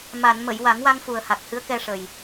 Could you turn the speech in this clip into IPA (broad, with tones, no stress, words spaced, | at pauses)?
ma˨˩˨n mə˨˩˨jwa˨˩˦ŋwa˧ŋ fu˨˩ə̯ha˨˩k̚hɨ˧˥ə̯ kɛ˧ʂə˨˩j